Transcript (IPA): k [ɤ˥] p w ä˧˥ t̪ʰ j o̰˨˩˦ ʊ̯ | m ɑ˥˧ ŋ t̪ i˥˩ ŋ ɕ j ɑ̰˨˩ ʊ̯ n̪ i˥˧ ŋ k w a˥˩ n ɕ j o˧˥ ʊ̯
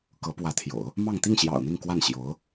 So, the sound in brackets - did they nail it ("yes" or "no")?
no